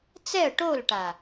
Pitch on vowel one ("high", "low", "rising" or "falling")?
falling